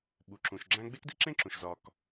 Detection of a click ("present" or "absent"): present